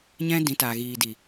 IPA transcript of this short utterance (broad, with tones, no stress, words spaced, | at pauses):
ɲɛ̃˦dĩ˨˦ ta˨ɣiː˨di˨